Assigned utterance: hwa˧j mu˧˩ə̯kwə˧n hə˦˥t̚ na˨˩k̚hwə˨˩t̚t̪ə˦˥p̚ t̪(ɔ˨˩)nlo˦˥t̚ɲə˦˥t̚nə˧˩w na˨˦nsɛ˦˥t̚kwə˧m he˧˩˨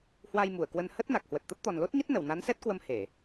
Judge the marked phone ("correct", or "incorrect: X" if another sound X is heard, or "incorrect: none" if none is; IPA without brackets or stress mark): correct